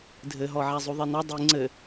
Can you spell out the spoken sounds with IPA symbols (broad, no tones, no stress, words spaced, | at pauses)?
dʱɘɦɔ ʕæzˤuðˤinɔ dˤi ŋ͡ǀɘ